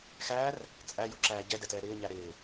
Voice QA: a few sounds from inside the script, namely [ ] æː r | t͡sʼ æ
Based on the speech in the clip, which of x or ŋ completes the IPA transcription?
x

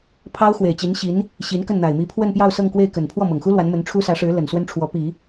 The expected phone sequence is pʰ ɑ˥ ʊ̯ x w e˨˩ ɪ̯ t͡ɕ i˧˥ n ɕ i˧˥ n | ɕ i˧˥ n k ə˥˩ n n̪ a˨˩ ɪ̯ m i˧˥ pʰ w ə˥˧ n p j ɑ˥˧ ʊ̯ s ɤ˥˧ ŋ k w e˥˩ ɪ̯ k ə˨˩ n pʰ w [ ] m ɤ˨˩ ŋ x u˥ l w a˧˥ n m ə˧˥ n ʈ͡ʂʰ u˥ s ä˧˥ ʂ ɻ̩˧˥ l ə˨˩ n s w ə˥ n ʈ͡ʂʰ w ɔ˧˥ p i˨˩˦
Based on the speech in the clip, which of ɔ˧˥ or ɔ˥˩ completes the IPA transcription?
ɔ˥˩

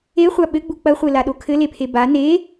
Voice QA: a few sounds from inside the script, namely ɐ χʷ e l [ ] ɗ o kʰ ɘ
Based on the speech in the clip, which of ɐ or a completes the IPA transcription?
a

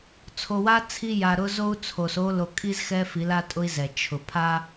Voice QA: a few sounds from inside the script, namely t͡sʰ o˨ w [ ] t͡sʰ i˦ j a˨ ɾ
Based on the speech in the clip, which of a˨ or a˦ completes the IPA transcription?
a˦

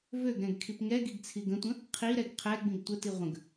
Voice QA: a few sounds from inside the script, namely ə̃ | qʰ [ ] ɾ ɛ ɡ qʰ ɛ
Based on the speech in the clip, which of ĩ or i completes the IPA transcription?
i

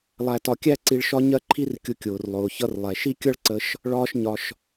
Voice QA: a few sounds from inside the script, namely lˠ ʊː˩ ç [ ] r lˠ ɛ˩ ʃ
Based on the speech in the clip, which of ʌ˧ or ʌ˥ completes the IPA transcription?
ʌ˧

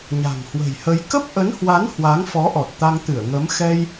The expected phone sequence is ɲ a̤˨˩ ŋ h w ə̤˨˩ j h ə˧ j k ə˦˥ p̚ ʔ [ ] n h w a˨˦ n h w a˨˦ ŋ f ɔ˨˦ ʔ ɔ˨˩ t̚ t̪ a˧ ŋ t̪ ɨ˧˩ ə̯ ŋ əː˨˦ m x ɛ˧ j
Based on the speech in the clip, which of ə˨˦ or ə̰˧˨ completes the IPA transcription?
ə˨˦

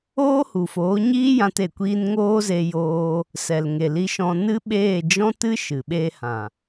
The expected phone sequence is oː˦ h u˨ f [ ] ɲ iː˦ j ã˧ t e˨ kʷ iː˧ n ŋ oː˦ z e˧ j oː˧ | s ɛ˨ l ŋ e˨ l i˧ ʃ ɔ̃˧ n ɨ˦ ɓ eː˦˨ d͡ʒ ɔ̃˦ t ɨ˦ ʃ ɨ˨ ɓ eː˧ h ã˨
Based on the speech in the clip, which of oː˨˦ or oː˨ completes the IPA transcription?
oː˨˦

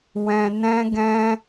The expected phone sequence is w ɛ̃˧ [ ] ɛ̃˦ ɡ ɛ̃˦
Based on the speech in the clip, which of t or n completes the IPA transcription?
n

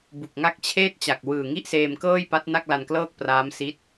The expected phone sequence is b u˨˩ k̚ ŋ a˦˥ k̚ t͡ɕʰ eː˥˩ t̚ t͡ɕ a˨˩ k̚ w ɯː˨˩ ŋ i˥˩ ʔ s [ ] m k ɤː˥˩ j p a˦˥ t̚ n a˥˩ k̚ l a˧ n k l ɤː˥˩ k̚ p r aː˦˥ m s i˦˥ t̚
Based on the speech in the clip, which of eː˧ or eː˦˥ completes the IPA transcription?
eː˧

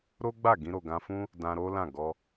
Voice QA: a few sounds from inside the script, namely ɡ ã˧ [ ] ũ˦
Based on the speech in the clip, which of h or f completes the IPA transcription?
f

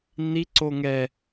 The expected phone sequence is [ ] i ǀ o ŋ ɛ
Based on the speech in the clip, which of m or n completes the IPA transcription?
n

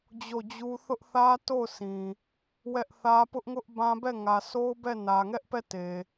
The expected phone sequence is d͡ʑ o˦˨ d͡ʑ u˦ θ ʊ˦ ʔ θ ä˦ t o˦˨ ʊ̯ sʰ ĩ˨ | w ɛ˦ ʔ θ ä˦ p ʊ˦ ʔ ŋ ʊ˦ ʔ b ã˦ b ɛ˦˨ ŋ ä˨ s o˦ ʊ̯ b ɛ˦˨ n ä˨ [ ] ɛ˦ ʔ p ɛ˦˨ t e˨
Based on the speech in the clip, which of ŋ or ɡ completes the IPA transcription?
ŋ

